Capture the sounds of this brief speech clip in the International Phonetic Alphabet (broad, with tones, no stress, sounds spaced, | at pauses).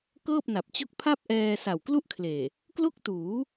k ɤː˥˩ p̚ n a˨˩ p̚ t͡ɕ o˥˩ k̚ pʰ a˥˩ p̚ ʔ ɛː˧ s a˨˩ w k l u˥˩ ʔ kʰ l eː˨˩ | k l o˥˩ k̚ t uː˩˦